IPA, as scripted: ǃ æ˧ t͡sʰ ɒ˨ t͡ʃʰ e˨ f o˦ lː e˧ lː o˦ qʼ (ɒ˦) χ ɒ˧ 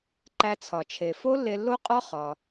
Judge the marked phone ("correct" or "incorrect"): correct